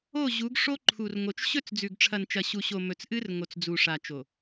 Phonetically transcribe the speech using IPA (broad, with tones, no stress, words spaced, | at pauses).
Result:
o˦˨ʑu˨˦ɡ ʂo˦ǃʰu˨rŋo˨t͡ʃ ɕɵ˦˨t͡sd͡zʉ˨ɡʈ͡ʂʰɐ˨nt͡ʃɐ˨ ɕu˨ɕo˨ mɵ˨t͡sʔɨ˦r ŋo˨t͡sd͡zu˨ʂa˨t͡ʃo˨